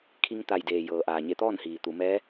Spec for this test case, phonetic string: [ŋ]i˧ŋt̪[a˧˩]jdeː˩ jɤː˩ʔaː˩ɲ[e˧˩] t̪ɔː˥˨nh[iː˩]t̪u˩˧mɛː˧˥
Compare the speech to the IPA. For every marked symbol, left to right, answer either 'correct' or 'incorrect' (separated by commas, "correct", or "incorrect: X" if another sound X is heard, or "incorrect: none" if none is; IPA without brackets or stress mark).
incorrect: kʰ, correct, correct, correct